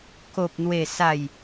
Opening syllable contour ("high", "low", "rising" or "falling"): low